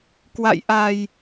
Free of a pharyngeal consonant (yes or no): yes